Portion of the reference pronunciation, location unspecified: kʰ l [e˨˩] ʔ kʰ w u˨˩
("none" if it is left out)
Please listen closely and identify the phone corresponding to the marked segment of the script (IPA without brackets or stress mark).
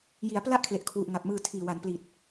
e˨˩